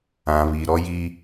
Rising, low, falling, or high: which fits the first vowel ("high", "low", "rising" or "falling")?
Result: low